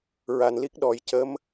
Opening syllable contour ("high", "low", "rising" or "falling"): low